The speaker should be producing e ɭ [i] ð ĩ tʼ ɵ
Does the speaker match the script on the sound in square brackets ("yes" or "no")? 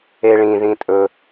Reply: no